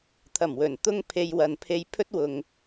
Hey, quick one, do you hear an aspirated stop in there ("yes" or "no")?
yes